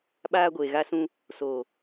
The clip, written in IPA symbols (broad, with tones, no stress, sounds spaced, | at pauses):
ɓ aː˦ ɡʷ eː˨ ɣ a˦ s ũ˦ | s oː˨